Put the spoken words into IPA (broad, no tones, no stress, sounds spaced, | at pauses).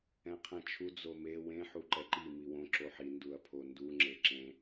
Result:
ɛ̃ qʰ ɛ̃ t͡ʃʰ u d͡z o m e w ẽ ħ u ǃ ɛ ǃ i m i w õ ǁ o ħ i n d u ɐ̯ pʰ o n d u ŋ͡ǁ e ǁ ẽ